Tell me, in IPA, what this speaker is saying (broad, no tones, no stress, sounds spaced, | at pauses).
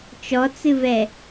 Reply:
t͡ʃ ɔ t͡s ɨ v ɛ